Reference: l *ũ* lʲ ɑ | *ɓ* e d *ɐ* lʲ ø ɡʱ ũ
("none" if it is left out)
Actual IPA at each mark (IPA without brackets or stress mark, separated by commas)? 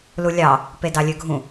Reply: u, p, ɑ